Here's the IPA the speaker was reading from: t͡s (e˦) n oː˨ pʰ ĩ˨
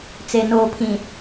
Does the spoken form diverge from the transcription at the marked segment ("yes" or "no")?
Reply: yes